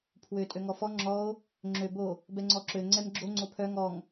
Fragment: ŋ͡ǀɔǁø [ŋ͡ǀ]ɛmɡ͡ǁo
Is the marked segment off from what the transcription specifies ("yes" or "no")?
no